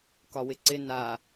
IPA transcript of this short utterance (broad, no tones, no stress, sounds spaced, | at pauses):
k ɒ w ɪ ǀ ɪ n a